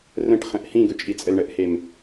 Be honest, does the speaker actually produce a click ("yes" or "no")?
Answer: no